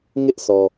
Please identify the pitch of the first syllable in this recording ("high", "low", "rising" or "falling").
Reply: high